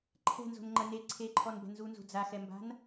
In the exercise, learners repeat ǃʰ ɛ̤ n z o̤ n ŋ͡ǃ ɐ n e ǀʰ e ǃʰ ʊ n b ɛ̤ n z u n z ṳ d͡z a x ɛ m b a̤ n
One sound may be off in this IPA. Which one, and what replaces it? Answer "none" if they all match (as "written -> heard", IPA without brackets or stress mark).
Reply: ʊ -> ɔ